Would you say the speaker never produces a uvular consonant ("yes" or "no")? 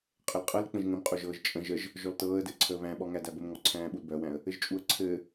no